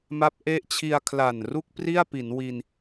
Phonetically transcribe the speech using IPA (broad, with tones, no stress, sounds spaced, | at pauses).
m a˦˥ p̚ ʔ e˦˥ ʔ t͡ɕʰ i˧ a̯ kʰ l a˨˩ n r u˥˩ k̚ p r i˥˩ a̯ p i˩˦ n w i˧ n